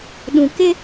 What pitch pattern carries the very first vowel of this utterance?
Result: low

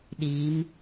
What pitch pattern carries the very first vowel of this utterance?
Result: rising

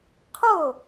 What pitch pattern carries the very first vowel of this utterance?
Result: falling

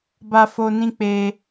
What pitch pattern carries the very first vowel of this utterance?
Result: high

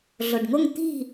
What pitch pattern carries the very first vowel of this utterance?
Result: low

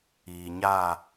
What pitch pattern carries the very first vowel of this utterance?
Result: low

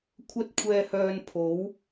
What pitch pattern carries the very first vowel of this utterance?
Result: high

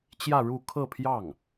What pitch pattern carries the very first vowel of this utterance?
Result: falling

